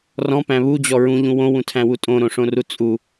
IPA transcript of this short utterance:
r ɔ̃ p æ̃ β u d͡ʑ ɔ ɹ ũ ʎ ũ w õ w ũ tʰ æ̃ w u tʼ õ ɾ õ ʂ õ r u t͡sʼ u

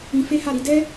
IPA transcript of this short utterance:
ĩ˧ f e˦ h a˦˨ ɾ i˨˦ d ɛ˦

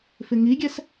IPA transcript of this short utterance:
f ɪ ŋ i ɡʲ ɛ s

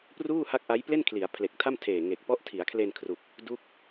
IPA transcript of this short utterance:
p r uː˥˩ h a˦˥ k̚ ʔ a˦˥ j p l e˥˩ n kʰ l i˩˦ a̯ pʰ l e˨˩ k̚ tʰ a˥˩ m tʰ eː˨˩ ŋ e˨˩ k̚ p ɔ˦˥ ʔ tʰ i˩˦ a̯ kʰ l e˧ n kʰ r u˨˩ k̚ | d u˦˥ k̚

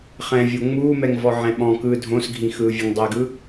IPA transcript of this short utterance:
χ ɛ̃ vʲ o ŋ͡m uː m ɛ ŋ v ɔ ʕ ɛ̃ ɓ ɔ̃ k ɯː dʱ õ s ɡʱ ĩ x ɯː vʲ ɯ ŋ dˤ ɛ ɡ ɯ

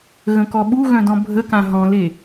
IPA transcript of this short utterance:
ɣ ə̃ k ɔ ɓ u ɣ œ̃ d ɔ̃ bʱ ə k ã ɦ ɔ̃ l e

